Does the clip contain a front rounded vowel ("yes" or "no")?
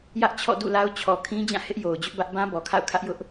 no